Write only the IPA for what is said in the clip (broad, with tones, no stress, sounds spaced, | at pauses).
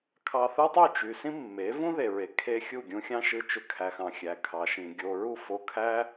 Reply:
kʰ ɑ˧ θ ɯ˦ tˤ y˦˨ t͡ʃ y˨ s ĩ˦ mː e˨˦ v ũ˦ ð e˨ ɹ e˨ kʰ e˦ xʲ u˦˨ ɡʲ ũ˧ xʲ ɑ̃˦ ʃ ɯ˧ t͡ʃ ø˧ kʰ æ˨ x ɑ̃˨ xʲ æ˨ kʰ ɑ˨ ʃ ĩ˨ ɡʲ o˨ ɹ u˦˨ f o˧ kʰ æ˦